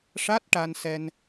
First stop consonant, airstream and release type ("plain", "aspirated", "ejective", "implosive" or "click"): plain